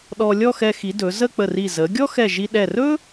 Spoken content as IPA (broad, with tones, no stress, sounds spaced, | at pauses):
ɗ ɔ˧ lʲ ɔ˥˧ x ɛ˧ x i˩˧ d ɵ˩˧ z ə˥˧ k͡p ə˧˩ r i˧˩ z ə˩˧ ɡʲ ɔ˥ x ɛ˧˩ ʒ i˧ ɗ ɛ˧˩ r ɵ˥